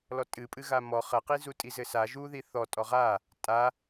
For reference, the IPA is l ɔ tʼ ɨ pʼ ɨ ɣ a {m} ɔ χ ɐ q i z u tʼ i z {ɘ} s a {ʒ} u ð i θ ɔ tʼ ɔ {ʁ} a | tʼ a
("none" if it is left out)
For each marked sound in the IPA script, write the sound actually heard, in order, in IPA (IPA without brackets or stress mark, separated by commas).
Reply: m, ɘ, ʒ, ʁ